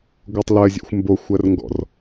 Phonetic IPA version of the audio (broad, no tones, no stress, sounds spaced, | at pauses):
ɡʷ ɜ tˤ l ɜ zʲ ɛ̰ xʷ m b o xʷ ɜ r ŋ ɡ ɔ̰ r